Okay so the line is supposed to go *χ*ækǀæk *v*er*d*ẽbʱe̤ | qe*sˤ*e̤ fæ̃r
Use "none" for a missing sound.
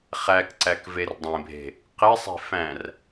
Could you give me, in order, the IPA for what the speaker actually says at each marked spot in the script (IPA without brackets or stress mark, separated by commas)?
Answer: χ, v, dˤ, sˤ